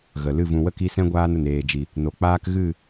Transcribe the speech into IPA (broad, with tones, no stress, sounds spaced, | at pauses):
ɣ ə˨ l ɨ˦˨ v ũ˨ w ə˦ k i˧ s ɛ̃˦ ɡʷ aː˦ n ə˨ n eː˨ d͡ʒ i˨ | n o˨ k͡p aː˦ k ɣ ɨ˦˨